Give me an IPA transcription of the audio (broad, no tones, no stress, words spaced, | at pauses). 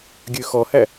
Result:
ɡʲøxɔhæ